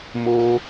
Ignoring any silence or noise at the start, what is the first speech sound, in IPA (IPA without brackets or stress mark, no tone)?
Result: m